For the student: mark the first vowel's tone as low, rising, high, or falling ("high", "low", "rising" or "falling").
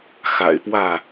low